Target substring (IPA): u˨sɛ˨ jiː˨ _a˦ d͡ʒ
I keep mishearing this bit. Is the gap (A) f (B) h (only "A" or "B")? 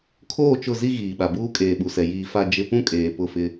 A